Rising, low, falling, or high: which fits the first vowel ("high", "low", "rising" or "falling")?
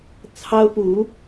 high